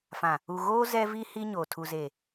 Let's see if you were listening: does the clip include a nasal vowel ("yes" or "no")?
yes